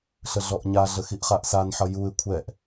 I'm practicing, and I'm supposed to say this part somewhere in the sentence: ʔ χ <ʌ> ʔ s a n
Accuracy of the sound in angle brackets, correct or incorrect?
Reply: incorrect